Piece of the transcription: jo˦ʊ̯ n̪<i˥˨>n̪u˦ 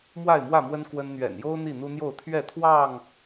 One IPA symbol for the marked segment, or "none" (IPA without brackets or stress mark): i˥˨